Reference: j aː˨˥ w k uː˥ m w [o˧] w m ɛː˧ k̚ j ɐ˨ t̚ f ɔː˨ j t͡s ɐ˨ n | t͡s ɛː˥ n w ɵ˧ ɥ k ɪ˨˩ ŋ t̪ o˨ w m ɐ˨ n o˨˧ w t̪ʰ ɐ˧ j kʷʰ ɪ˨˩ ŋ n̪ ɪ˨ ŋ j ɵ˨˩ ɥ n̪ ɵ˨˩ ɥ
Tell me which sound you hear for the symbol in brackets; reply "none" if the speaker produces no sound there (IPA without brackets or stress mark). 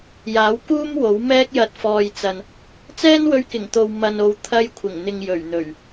o˨˥